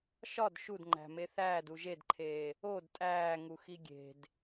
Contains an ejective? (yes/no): yes